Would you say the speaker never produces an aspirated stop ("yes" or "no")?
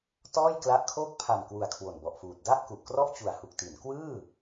no